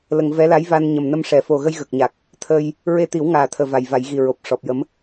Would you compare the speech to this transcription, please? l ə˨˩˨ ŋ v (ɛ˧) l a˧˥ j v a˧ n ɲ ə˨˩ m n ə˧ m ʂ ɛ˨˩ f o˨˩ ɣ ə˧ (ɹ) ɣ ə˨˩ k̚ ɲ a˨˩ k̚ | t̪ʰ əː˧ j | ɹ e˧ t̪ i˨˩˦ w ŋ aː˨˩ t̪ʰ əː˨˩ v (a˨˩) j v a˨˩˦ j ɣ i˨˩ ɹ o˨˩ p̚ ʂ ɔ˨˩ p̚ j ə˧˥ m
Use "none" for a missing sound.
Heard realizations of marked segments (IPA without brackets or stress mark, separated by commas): ɛ˧˥, j, a˨˩